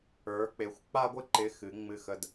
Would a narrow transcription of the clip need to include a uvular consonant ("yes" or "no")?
no